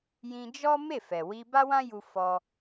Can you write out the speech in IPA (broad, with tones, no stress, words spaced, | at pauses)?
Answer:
jĩ˧d͡ʒɔ˦ me˦˨ fɛ˨ wi˧ba˦wã˦ ju˧fɔ˧